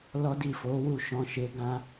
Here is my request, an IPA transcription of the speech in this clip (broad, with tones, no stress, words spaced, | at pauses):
lɔ˦di˦˨fo˨˦ wu˦˨ʃɔ̃˧ ʃe˧ɡã˦